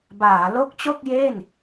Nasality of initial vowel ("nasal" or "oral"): oral